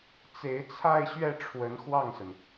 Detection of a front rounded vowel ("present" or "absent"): absent